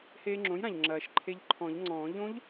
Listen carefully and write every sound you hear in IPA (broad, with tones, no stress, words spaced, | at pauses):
heː˧ŋ͡ǁõ˩˥jɾã˩ʎ ŋ͡ǁɐː˨˩˦ʃ ǃʰe˧ʎǃʰɔ̃˨˩˦ʎŋ͡ǀɔ̃ː˨˩˦ ʎõ˦˥ʎ